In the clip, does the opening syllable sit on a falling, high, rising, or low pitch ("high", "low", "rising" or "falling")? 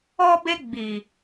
high